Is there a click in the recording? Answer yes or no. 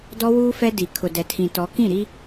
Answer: no